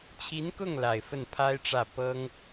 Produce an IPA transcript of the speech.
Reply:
t͡ɕʰi˧˥nkʊ˥˩ŋ la˨˩ɪ̯fə˥˩n pʰa˥ɪ̯ʈ͡ʂä˥˩ pɤ˥ŋ

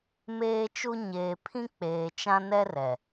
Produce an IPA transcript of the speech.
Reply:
meː˦t͡ʃu˦ ɲeː˨pʰĩ˦ k͡peː˨t͡ʃã˦ nɛ˦rɛ˨

